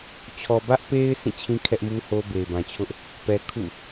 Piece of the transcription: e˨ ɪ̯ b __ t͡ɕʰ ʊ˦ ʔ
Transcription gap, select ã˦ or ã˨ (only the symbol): ã˨